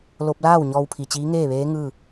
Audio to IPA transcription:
lo˧p̚laː˥˨w ɲɔː˧wpʰi˧˩t͡ɕiː˧˥ ŋeː˥˨ʋeː˧˥ ŋɯː˥˨

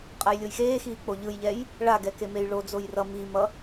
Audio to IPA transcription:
qʼajlʲojxeːxiː k͡poʎɯjʎɛj | ɭaɡɛ kemejɭod͡zoj rʌ mimʌ

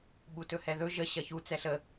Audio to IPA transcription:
ɓutɵhɛðɵ ʒə ɕɐçu t͡sɛɬə

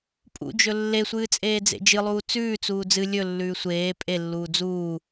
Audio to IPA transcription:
pʼṵd͡ʒɵ lːesʷɨː t͡sʼeːd͡zḛd͡ʒɨlˠuː t͡sʉːt͡suː d͡zɨ lʲɵlːʉː sʷeː pʼelːuː d͡zuː

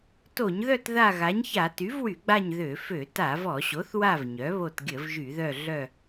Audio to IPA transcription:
to˧˩˧ɲðœ˦˨t ða˦˨ɣa˩˥ɲça˧˩˧ ty˩˥vwy˧˩˧ɡ͡ba˦˨ɲ ðø˧˩˧fø˧˩˧ ta˧˩˧vɔ˧˩˧ɕo˩˥θwa˦˨v ɲœ˩˥βo˦˨t ɡʲə˧˩˧v ʒy˧˩˧ðœ˦˨ ɮœ˦˨

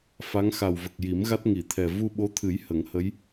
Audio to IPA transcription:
fa˧˥ŋxa˨˩wvə˨˩k̚ji˨˩˦m ɣa˦˥t̚ŋi˨˩˨t̪ʰɛ˨˩ vu˧ɓo˧˥t̪ʰɨ˨˩˦j hə˨˩˦ŋhə˧˥j

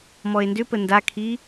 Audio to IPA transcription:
mɔe̯ndʏpə ndakʰi

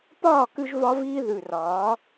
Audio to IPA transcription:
pɒː˦˨kʉ˧ʒ vɒ˦viː˦ ðʉ˨rɒː˨˦

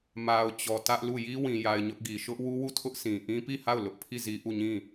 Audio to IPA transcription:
ma˨ʊ̯t͡ɕɔ˨ tä˦ʔ lu˦˨ ji˦wĩ˨ja˨ɪ̯ ɲʊ˦ʔɡi˨ ʃʊ˦ʔwu˦wu˦˨tʰʊ˦ʔ sĩ˨ʔĩ˦pi˦˨ha˦˨ʊ̯ lʊ˦ʔpʰi˦˨zi˦ ʔu˦˨ɲĩ˦˨

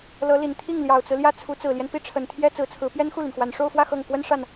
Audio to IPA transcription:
lɤ˧˥li˨˩n t̪ʰi˥˩ŋljɑ˨˩ʊ̯t͡sɹ̩˦ljä˥˩ t͡sʰu˧˥t͡sɹ̩˨˩ljɛ˦n pi˥˩ʈ͡ʂʰə˨˩nt̪ʰjɛ˥ t͡sɹ̩˧˥t͡sʰɹ̩˧˥ pjɛ˥nxu˥˩ly˩nxwa˨˩n ʂo˥˧ʊ̯fwä˥˧ xɤ˥˩ŋ kwə˥nʂa˥˩n

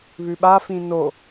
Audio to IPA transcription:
βʉɓafĩ no

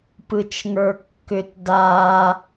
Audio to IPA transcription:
pɯt͡ʃŋə˞kːʏt da

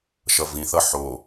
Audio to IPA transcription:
ʃʌvĩθʌ ħo

